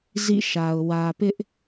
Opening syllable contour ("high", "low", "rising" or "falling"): falling